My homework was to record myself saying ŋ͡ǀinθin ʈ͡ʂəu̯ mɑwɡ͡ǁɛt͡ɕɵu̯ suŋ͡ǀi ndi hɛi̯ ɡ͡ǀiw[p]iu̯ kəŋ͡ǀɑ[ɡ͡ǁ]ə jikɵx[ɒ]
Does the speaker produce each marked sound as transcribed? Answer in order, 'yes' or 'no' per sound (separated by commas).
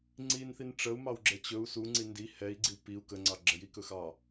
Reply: yes, yes, no